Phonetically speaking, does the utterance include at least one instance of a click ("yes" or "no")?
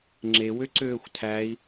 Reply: yes